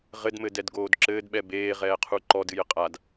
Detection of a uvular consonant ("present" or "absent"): present